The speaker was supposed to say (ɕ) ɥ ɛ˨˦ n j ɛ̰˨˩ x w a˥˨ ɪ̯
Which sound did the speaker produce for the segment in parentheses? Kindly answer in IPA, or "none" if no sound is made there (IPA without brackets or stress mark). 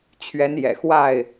t͡ɕʰ